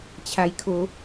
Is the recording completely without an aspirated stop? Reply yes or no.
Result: no